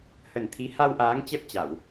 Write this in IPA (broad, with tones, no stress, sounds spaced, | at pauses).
h ə˨˩ n t̪ʰ i˨˦ h a˧ w ʔ aː˨˦ ŋ t͡ɕ ɛ˦˥ p̚ t͡ɕ a˧˩˨ w